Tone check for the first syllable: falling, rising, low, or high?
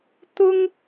high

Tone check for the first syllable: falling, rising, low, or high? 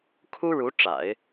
high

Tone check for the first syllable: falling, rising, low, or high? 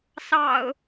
low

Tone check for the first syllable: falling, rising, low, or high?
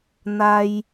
high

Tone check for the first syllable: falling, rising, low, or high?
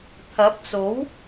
rising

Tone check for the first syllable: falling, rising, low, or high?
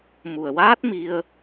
low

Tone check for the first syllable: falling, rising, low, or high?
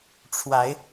rising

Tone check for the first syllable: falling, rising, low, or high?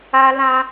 high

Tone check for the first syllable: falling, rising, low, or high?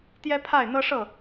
high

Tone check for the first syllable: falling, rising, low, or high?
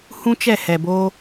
high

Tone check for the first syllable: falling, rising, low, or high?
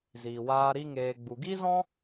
low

